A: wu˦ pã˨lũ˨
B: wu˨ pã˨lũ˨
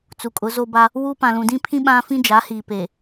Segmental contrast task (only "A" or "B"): A